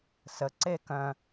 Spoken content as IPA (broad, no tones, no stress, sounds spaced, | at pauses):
s ə ǀ e k œ̃